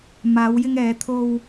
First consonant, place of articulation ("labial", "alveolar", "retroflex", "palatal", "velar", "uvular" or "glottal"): labial